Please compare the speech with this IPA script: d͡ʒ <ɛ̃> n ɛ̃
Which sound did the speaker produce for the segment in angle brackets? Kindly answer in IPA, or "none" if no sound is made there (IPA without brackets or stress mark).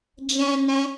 ɛ̃